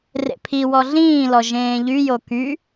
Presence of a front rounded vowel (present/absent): present